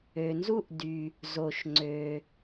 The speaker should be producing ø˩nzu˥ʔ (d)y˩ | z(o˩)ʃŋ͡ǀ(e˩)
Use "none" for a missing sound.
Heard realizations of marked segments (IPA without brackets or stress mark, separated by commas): d, o˩, ø˩